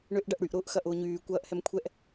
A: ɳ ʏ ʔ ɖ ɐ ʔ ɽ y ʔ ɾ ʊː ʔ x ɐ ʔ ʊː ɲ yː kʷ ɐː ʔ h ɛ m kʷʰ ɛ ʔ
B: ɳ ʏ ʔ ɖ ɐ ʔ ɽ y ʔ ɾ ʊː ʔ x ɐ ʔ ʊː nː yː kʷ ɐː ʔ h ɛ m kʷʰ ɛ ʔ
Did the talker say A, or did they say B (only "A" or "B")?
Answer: A